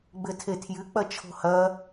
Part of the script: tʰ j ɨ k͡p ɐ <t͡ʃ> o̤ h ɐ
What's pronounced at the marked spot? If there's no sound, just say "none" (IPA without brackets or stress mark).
t͡ʃʰ